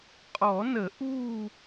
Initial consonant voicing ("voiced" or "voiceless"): voiceless